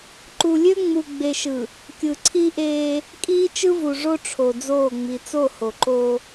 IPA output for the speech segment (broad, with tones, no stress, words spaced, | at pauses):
ǃu˨lʲø˦ŋ͡mu˨ ɡ͡be˨ʃɯ˨ | kʲɯ˨ǀʰi˦ʔeː˦ | kʼiː˦t͡ʃɯ˦vu˨ ʐo˦ʈ͡ʂʰo˨ d͡zoː˦˨ŋ͡mi˨ t͡so˦˨ho˨ǃoː˦